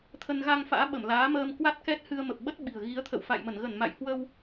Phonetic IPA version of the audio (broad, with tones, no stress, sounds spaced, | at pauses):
t̪ʰ ə˧ n ɣ a˧ ŋ f a̰ː˧˥ ɓ ə˧˩ m l aː˨˦ m əː˧ m k w a˦˥ t̚ k ɛ˦˥ t̚ h ɨ˧ ə̯ m ə˨˩ p̚ ɓ ə˦˥ t̚ ɓ i̤˨˩ ə̯ ɣ i˨˦ ə̯ t̪ʰ ə̰˧˨ w f a̰˧˨ j m ə˧˩ n ɣ ə˧˩ n m a̰˧˨ j h w ə˧ w